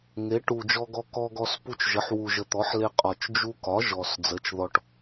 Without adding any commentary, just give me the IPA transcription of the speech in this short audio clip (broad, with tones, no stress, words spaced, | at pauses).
ŋe˩˥ ʈu˨˩d͡ʒɔ˧ɡɔ˧ kɔ˧ɡɔ˧s pu˧t͡ʃʒə˩˥ħ wu˨˩ʒə˨˩t̪ɔ˩˥ħ le˧qʼɒ˨˩t͡ʃ d͡ʒu˧kɒ˩˥ ʒɔ˨˩s d͡zə˩˥t͡ʃðɔ˧ʈ